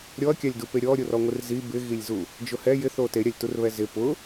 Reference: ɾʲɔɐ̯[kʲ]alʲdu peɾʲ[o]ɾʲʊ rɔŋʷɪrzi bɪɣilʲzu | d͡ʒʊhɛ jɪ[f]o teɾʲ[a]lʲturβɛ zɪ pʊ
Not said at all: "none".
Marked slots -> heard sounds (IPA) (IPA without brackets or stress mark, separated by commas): kʲ, ɔ, θ, a